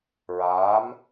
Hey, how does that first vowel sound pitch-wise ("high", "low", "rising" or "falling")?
rising